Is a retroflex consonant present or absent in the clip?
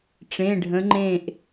present